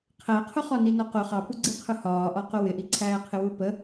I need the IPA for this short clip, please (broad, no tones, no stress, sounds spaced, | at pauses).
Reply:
qʰ æ qʰ ʊ χ ɒ n i n ɒ q ʊ χ ɑ p u ɡ͡ǀ i qʰ ʊ h ɒː ʔ ɒ q ʊ w ɪ ʔ i ǀʰ æː qʰ ɪ w u p ə